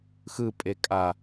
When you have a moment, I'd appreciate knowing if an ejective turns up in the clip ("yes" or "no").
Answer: yes